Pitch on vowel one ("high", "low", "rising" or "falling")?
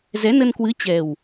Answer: rising